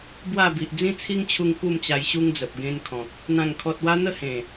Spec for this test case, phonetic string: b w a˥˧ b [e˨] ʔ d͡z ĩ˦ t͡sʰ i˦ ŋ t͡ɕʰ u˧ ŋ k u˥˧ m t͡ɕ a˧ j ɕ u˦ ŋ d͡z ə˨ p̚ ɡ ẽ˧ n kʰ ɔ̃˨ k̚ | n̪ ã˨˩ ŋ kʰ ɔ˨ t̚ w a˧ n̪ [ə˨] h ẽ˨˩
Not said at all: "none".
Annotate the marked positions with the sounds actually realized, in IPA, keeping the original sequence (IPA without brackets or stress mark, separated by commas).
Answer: i˨, ə˥˧